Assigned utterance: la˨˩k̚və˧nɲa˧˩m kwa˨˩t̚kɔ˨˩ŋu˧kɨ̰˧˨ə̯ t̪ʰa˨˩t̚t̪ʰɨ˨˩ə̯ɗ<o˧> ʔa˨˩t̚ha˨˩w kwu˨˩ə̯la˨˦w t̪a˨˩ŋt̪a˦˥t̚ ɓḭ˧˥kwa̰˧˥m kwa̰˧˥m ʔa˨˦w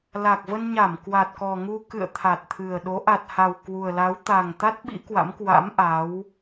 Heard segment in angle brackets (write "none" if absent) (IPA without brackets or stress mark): o˨˦